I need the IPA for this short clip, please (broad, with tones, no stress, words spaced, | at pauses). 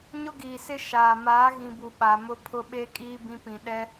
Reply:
ɲʊ˦ɡiː˨sɪ˦ ʃaː˨ maː˨˦ɣĩ˨bu˨ ɓa˨mʊ˦pʰʊ˦ ɓe˦ kʼiː˦bĩ˦pĩ˨ ɗɛ˦